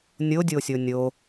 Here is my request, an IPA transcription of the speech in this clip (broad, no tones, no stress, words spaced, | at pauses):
nʲodʲo sʲonʲo